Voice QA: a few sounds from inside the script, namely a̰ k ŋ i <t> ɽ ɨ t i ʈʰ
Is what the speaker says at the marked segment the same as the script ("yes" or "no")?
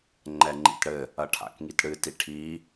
yes